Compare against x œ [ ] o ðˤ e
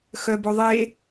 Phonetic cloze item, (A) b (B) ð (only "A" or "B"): A